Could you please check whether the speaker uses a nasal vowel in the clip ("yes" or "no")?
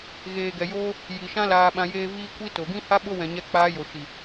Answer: yes